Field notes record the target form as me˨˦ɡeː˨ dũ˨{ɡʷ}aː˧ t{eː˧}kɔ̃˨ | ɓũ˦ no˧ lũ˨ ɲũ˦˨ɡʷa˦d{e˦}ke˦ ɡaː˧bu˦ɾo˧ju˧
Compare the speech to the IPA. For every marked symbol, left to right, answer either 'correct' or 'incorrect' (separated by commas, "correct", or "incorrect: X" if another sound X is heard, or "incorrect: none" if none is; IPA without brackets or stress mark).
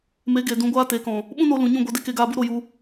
correct, incorrect: eː˨, correct